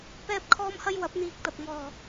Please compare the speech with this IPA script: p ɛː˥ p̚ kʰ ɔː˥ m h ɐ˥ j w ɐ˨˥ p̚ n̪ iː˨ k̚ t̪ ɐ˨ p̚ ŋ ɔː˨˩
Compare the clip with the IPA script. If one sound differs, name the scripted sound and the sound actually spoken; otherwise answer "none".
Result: none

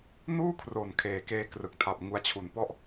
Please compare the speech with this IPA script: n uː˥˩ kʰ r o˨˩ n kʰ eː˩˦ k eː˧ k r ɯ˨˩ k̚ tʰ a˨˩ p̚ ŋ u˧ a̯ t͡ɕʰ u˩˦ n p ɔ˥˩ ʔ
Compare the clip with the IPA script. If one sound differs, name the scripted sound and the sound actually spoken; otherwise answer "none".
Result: none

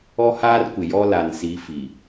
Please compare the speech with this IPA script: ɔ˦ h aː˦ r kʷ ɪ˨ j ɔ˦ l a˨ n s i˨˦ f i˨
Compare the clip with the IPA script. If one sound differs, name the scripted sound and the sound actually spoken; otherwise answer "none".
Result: none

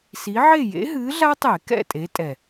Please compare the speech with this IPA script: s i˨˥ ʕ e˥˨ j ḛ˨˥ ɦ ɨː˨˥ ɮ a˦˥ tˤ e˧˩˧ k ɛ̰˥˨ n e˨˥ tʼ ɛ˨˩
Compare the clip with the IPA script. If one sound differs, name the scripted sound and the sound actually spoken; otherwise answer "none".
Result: n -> tʼ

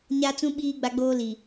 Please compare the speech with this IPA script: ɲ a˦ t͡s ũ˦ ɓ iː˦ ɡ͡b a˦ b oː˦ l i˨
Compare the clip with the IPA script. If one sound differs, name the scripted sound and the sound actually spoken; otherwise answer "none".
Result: b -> ɡ͡b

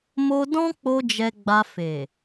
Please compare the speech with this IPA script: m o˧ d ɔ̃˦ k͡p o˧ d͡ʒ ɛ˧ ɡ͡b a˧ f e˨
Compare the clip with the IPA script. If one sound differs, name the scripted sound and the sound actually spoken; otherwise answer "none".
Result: none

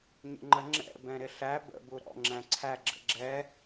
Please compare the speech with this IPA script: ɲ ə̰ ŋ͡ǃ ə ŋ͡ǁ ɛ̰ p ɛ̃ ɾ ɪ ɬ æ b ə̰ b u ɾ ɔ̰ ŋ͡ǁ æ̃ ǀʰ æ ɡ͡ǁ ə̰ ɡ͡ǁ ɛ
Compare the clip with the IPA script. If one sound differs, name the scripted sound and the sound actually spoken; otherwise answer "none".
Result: p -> b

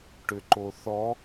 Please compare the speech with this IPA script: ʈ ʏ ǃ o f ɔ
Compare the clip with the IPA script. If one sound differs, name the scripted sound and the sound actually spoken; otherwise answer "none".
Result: f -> θ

